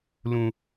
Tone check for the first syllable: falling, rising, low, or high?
low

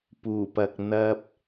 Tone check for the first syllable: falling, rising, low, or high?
low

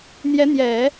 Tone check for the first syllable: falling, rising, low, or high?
rising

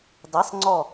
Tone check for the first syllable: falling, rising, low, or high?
rising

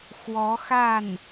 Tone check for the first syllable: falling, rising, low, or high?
rising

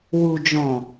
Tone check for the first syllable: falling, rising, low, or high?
low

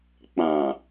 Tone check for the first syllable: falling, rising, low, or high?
low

